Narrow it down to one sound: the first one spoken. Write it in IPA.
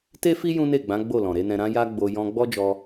t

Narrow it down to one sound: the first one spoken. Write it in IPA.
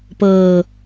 p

